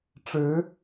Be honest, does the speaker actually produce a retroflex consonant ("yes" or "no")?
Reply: yes